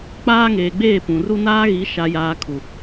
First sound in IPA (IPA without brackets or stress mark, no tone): k͡p